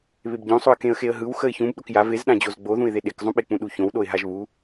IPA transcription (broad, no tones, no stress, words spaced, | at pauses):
βebɟõsˤoə̯ kẽə̯xeə̯ɦɯw xəɪ̯çũb ɗokjav ezɗãd͡ʑoz ɡ͡boðũɪ̯ðe ɗekzˤũɓek͡pũ ɗuçõwɗoɪ̯ ɦaʒβu